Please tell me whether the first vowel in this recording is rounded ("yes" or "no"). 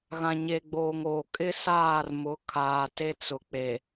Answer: no